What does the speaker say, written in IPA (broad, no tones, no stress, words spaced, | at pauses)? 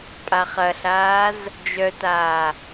pʼaχɐɬaːz | d͡ʒœtaː